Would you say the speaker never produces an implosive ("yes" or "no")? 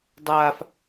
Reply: yes